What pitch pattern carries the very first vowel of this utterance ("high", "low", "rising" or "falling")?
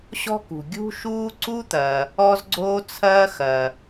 high